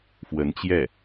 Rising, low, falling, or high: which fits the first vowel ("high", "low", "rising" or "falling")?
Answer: rising